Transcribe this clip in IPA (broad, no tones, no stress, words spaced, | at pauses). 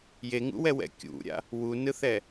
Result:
jeŋṵwɛwɛ̰ kʲṵɾʲa̰ | wunɯθɛ